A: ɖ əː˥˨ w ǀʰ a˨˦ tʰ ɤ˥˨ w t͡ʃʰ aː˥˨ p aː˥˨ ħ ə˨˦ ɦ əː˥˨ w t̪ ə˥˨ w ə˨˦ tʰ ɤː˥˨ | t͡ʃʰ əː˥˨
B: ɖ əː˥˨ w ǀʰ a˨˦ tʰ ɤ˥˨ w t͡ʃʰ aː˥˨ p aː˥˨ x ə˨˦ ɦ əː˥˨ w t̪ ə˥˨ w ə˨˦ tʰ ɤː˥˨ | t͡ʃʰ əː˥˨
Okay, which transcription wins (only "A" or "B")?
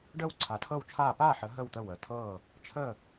A